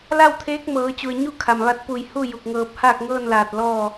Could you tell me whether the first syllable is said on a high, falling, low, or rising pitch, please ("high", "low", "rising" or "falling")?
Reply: falling